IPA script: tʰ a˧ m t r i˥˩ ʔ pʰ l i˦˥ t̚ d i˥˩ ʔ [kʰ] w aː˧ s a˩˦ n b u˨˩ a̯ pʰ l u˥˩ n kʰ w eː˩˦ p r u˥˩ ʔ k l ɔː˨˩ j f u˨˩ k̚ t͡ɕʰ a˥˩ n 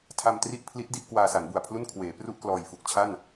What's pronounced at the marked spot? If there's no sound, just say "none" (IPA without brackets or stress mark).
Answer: k